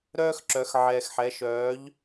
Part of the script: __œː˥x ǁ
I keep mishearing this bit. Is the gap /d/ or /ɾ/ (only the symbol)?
ɾ